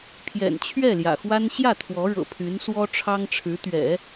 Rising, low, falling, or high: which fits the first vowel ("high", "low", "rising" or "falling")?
low